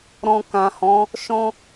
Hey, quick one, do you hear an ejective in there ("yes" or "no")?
no